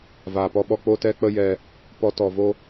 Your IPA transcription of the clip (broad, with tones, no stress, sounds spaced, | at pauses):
v aː˨ p ɔ˦ ɓ ɔ˦ k͡p o˦ t ɛ˦ k͡p ə˦ j ɛ˧ | p ɔ˧ t ɔ˨ v o˦